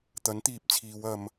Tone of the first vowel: rising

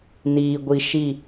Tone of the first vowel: low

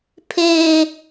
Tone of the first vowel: high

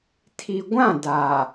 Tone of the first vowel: low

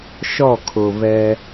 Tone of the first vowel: falling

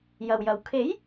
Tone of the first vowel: low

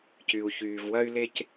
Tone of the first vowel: low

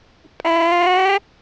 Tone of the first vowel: rising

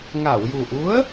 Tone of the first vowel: low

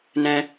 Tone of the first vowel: high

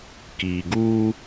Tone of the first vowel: low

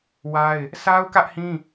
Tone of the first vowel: high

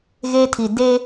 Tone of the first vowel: high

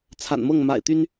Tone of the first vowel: low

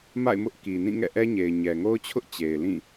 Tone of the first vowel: falling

